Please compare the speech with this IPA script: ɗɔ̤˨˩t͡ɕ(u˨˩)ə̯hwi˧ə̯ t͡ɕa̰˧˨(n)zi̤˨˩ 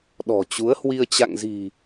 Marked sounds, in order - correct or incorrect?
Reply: incorrect: u˨˦, incorrect: ŋ

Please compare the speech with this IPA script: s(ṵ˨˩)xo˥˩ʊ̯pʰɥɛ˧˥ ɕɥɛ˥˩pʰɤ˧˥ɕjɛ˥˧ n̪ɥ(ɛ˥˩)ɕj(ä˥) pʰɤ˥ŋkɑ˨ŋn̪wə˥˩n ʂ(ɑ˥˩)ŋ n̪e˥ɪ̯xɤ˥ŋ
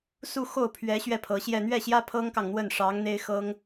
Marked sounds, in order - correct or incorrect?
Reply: incorrect: u˥˧, correct, correct, incorrect: ɑ˧˥

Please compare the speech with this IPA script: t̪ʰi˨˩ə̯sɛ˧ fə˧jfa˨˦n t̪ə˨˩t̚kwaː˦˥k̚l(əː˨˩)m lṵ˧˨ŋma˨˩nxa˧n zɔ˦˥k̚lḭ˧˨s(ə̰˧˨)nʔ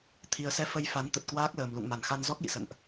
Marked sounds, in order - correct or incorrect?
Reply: correct, correct

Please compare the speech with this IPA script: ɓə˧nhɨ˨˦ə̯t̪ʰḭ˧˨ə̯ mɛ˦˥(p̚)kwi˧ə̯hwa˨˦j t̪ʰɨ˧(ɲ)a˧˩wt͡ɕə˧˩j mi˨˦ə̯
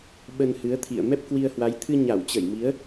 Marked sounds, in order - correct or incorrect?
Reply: correct, correct

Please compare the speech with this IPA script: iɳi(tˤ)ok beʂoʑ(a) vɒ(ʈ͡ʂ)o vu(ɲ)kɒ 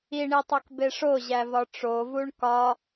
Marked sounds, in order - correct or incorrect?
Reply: correct, incorrect: æ, correct, incorrect: ɳ

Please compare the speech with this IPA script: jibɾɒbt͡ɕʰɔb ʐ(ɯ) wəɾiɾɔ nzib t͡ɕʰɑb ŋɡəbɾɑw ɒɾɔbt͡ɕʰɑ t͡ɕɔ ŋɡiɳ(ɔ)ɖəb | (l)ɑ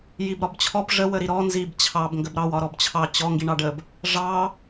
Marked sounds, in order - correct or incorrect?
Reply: incorrect: ə, incorrect: ɑ, incorrect: ʐ

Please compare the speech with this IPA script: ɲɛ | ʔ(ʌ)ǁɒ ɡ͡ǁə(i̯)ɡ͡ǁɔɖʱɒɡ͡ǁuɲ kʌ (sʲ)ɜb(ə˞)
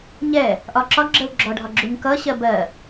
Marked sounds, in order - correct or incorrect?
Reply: incorrect: ɒ, incorrect: u̯, incorrect: ɕ, incorrect: ɜ

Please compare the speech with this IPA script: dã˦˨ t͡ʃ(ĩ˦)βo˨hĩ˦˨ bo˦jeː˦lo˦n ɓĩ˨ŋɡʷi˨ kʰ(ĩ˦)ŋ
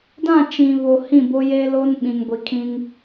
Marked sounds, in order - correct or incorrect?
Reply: incorrect: ĩ˨, correct

